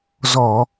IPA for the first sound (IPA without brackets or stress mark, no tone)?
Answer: z